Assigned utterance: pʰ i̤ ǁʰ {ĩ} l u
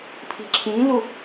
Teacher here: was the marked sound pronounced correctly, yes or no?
yes